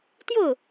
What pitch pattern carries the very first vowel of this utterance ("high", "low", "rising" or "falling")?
falling